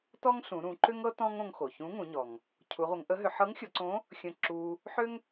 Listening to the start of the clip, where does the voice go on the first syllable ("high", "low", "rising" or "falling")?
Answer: high